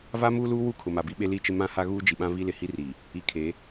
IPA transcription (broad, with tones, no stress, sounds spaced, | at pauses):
v aː˦ m uː˦ l uː˦ w u˦˨ kʰ ʊ˨ m a˨ b i˦ ɓ e˦ l i˦ t͡ʃ ɪ˦ m ã˦ h a˦ ɣ uː˦ d͡ʒ i˨ ɓ ã˦ v i˦ l ɪ˨ h i˦ r i˨ | i˨˦ kʰ e˨˦